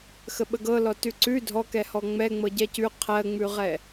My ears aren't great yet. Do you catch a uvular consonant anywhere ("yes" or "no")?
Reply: yes